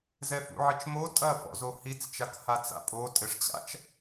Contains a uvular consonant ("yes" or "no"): no